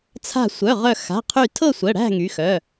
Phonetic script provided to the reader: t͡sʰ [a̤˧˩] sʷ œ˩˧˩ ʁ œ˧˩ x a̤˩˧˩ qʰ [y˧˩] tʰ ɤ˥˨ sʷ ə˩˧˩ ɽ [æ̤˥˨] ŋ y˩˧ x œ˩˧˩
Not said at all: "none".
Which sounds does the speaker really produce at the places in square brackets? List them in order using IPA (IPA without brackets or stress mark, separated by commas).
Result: a̤˧˩, y˧˩, æ̤˥˨